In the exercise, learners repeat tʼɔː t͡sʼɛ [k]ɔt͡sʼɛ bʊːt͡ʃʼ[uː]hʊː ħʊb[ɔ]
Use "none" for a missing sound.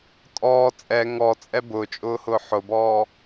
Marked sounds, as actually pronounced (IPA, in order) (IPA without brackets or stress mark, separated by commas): ŋ, ʊː, ɔː